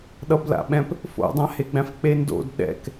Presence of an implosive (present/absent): present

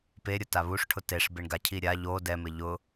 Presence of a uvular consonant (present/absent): absent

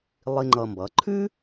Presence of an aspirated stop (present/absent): present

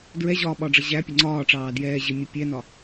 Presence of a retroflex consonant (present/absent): present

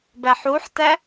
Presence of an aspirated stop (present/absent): absent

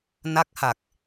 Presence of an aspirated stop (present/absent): absent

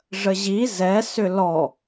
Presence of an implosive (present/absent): absent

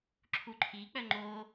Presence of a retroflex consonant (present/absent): absent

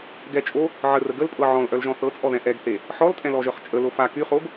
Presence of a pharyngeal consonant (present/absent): present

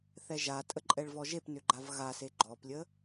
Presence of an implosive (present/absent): absent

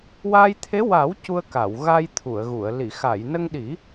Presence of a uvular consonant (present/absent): absent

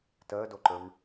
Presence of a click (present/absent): present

